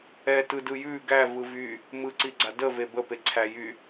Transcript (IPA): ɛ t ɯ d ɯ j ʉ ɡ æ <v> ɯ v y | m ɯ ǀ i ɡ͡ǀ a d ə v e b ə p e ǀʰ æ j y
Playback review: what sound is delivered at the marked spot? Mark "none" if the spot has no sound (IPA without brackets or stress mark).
v